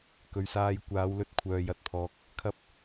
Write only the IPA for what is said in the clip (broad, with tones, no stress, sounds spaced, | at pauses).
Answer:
k ɵ˨˧ ɥ s aː˧ j kʷ aː˨˧ w l ɵ˧ t̚ kʷʰ œː˨ j ɐ˧ t̚ pʰ ɔː˨ k̚ | kʰ ɐ˧ p̚